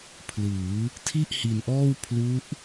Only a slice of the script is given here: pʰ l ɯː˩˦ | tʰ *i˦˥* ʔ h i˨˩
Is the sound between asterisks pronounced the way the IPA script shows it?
no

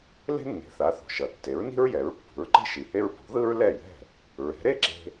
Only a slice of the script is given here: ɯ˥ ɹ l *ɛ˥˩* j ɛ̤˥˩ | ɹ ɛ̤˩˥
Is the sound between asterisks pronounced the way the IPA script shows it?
yes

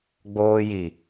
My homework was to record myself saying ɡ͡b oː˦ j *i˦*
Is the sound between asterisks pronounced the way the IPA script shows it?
no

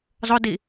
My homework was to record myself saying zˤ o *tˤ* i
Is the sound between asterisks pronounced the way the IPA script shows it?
no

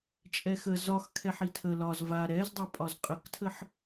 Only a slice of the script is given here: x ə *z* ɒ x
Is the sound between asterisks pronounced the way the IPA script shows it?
yes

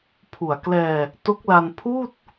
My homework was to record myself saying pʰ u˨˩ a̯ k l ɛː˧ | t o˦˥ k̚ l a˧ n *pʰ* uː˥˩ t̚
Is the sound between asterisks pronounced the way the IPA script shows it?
yes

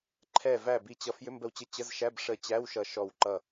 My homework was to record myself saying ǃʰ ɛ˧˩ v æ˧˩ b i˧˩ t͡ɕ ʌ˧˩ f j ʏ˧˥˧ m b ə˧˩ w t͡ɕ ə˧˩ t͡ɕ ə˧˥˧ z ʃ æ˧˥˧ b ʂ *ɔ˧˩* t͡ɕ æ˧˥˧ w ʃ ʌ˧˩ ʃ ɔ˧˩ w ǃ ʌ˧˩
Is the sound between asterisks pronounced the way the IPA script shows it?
no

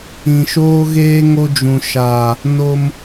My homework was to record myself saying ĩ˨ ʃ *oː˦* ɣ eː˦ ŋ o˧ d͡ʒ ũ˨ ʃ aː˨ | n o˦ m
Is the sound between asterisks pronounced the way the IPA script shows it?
yes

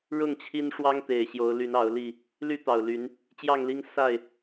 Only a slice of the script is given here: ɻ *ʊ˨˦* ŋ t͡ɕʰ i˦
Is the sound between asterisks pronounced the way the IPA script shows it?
no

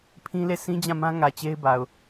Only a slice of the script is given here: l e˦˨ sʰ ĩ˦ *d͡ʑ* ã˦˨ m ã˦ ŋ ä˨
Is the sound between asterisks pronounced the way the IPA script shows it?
yes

